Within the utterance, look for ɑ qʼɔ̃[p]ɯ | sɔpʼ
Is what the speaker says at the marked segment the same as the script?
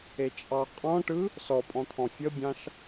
no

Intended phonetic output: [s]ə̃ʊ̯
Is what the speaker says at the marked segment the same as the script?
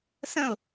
yes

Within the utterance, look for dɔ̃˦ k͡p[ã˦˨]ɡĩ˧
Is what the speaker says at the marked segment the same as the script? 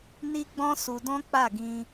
no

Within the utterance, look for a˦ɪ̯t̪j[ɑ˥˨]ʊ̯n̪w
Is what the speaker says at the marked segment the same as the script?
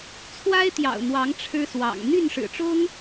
no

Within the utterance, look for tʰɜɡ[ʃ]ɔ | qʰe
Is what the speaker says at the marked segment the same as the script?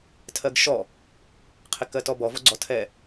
yes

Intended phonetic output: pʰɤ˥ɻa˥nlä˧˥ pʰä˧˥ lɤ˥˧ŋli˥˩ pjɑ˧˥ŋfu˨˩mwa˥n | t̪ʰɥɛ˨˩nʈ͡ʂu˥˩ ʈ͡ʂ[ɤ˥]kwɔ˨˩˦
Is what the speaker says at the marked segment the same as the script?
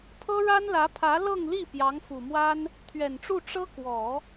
yes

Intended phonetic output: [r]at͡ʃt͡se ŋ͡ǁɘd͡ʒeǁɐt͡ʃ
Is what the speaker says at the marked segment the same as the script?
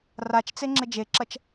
yes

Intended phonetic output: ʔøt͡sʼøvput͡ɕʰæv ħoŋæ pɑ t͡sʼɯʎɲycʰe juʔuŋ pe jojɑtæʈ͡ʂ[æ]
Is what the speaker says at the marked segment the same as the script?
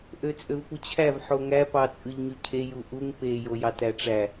yes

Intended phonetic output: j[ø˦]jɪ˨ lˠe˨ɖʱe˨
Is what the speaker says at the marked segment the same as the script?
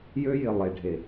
yes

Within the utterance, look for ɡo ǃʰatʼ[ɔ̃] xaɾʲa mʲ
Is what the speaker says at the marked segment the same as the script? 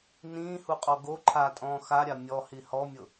no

